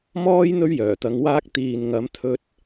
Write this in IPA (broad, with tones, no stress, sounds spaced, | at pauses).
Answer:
m ɔː˥ j n̪ ɵ˥ ɥ j œː˨˩ t̪ ɐ˧ ŋ w aː˥ k̚ t̪ iː˨ n ŋ ɐ˨˥ m t̪ʰ ɵ˧ t̚